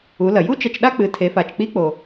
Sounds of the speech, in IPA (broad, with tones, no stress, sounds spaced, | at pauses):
u˩˧ l ɐ˩ j u˥ t͡ʃ ɐ˧ t͡ʃ ɗ a˥ k͡p ɨ˩˧ tʰ e˩˧ f a˩ t͡ʃ k͡p i˧˥ k͡p o˩